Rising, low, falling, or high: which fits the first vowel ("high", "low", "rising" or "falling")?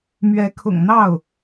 rising